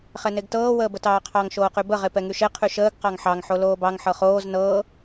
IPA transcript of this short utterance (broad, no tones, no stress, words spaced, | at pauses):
χɛneɡtɤː wəːbətɑːqʰɑŋ ʃoːqybə ʁepɛŋyʃe qʰyʃəːɡ qɑŋħɑŋ ħoloːbɑŋ ħɤχoːz nɤː